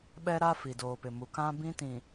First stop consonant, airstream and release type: implosive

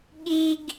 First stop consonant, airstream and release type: implosive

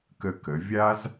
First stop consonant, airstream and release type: plain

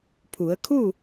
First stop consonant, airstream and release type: aspirated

